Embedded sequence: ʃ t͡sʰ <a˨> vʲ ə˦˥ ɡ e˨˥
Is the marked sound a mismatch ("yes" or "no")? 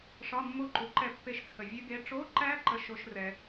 yes